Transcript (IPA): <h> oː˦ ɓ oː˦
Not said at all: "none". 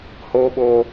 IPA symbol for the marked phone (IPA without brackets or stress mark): h